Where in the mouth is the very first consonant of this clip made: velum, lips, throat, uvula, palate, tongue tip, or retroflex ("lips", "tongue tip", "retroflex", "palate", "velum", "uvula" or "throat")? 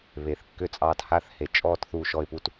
lips